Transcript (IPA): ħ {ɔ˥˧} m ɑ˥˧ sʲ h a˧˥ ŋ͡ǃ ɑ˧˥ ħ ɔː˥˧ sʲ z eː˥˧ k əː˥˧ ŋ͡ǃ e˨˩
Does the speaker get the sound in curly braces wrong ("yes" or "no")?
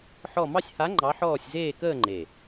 no